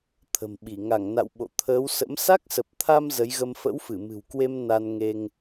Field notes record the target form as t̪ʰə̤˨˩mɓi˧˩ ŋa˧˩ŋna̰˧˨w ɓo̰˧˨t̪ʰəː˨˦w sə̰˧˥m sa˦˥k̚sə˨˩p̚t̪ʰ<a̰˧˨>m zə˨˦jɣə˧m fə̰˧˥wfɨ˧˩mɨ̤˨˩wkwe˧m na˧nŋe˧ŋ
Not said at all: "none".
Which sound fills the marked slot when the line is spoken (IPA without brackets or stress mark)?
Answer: a˧